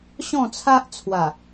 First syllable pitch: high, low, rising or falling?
falling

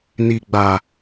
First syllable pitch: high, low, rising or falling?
low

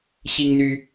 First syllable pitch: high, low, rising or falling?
high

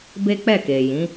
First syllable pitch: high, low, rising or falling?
high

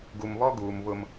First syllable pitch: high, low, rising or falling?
low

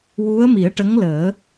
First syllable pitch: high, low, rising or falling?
rising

